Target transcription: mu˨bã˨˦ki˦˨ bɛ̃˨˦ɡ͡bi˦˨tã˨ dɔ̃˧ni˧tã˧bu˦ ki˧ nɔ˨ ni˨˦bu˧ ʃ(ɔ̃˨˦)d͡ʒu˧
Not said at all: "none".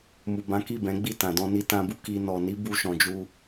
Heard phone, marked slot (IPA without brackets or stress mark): ɔ̃˨